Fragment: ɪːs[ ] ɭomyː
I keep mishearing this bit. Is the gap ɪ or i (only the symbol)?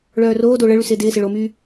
ɪ